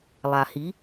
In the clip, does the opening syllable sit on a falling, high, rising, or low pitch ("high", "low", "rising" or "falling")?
low